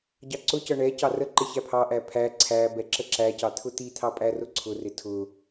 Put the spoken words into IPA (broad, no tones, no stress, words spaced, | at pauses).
ɟɑǀʊcʌ ɳɛ cɑrəǃɪ çæpʰɑʔæ pʰæ ǀʰæbɛ ǁəǁæcɑ t̪ʰʊt̪it̪ʰɑ pʼærʊǀʰʊrɪ tʰʊ